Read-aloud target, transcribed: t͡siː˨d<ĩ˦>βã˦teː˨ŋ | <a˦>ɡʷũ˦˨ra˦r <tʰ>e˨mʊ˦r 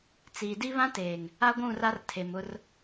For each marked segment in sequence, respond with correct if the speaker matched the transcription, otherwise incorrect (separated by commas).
incorrect, correct, correct